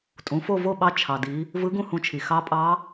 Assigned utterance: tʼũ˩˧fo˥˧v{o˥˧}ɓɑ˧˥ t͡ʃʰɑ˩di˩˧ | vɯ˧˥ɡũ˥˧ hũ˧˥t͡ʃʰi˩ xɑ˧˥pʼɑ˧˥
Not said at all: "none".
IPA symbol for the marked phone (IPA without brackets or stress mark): o˥˧